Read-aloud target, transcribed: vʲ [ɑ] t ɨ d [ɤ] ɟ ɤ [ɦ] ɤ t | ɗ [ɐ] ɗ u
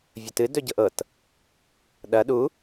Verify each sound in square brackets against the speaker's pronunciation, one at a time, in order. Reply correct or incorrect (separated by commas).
incorrect, incorrect, incorrect, correct